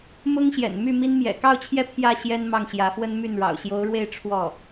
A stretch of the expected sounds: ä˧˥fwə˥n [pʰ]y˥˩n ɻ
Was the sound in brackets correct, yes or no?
no